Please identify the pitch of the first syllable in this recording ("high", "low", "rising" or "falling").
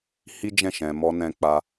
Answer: high